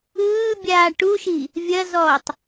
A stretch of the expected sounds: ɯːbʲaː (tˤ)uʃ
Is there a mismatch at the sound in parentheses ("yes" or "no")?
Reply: yes